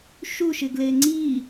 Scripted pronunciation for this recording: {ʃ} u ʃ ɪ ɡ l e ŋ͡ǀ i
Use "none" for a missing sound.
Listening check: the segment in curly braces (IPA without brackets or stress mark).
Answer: ʃ